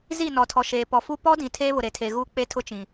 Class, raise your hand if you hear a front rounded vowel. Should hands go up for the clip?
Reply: no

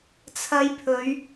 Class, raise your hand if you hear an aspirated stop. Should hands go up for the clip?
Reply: yes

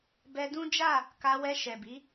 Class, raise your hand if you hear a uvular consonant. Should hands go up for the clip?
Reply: no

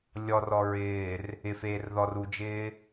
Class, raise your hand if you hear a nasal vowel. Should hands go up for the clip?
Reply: no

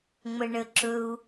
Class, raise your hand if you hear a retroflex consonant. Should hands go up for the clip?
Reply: yes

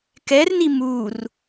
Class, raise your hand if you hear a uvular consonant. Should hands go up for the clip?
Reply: no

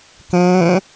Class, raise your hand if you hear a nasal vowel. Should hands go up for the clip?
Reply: yes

